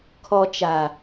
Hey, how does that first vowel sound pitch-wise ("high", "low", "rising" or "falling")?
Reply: low